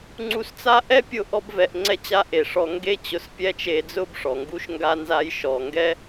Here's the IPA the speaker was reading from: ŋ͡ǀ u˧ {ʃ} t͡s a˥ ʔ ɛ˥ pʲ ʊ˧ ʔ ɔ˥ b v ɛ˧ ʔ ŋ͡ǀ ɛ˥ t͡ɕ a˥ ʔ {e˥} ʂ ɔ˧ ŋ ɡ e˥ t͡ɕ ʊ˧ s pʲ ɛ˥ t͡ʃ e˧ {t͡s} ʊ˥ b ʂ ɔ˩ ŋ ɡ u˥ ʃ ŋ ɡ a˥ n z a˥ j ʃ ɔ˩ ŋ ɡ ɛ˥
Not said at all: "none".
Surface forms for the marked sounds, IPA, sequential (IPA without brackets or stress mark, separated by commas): s, e˩, d͡z